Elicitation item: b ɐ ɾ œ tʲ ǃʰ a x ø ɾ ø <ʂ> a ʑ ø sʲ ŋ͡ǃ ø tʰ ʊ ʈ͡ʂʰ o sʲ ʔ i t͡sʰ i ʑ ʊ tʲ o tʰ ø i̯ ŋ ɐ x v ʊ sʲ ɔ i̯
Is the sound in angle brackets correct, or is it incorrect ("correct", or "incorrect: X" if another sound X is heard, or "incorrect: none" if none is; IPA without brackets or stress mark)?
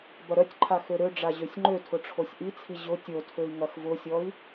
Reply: incorrect: ɖ͡ʐ